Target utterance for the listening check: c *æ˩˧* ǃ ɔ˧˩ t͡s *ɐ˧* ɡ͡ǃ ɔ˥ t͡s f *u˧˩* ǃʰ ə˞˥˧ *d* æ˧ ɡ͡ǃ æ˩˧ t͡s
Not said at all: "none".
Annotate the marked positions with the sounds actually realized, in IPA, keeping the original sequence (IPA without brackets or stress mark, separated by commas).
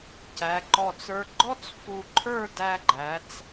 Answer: æ˩˧, ə˞˧, u˧˩, d